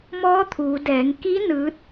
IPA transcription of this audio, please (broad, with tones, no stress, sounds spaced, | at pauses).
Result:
m ɔː˧˥ t̪ʰ uː˩˧ d ɛː˩˧ ŋ k i˧˥ n ɯː˧˥ t̚